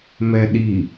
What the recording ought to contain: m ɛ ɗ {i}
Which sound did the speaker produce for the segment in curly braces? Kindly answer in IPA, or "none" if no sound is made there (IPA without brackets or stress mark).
i